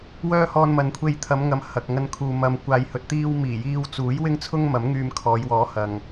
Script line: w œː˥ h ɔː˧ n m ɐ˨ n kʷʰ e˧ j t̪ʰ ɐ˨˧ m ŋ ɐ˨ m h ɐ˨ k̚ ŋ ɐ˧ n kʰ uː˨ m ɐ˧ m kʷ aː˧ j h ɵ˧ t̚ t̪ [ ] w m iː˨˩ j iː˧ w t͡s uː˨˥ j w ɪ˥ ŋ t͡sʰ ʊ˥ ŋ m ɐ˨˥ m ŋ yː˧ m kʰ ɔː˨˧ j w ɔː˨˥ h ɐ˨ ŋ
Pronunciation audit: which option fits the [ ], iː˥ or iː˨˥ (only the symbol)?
iː˥